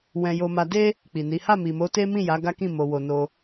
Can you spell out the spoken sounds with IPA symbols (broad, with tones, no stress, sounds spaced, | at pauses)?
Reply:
w ɛ̃˧ j o˧ m a˧ d e˧ | k͡p i˨ n i˨˦ h a˦˨ m i˨ m o˨˦ t e˦ m ĩ˦˨ j a˨˦ ɡ a˦ k ĩ˦˨ m o˧ w o˧ n o˧